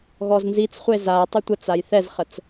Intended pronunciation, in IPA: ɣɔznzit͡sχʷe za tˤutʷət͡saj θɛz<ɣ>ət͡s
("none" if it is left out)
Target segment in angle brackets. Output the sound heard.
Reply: χ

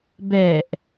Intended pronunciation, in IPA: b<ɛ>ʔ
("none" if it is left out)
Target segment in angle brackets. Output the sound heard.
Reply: ɛ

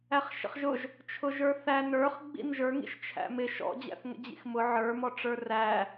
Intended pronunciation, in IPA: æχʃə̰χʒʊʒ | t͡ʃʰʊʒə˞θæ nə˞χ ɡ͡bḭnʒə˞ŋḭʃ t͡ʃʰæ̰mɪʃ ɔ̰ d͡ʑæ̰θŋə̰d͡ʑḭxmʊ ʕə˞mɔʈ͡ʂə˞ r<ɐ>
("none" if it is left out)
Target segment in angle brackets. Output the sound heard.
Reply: æ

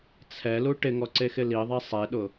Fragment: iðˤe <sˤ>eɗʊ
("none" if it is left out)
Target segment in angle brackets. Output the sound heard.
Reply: sˤ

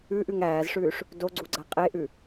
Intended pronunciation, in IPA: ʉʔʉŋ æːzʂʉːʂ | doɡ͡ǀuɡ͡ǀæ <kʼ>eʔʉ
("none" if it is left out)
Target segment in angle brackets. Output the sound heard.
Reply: qʼ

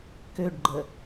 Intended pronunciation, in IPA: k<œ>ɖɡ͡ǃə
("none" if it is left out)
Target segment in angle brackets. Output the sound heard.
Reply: ø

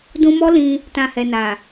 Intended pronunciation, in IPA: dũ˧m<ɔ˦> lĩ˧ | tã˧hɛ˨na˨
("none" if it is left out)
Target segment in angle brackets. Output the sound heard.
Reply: ɔ˦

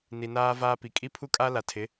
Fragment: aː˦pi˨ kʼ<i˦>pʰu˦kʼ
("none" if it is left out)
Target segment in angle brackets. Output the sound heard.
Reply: i˦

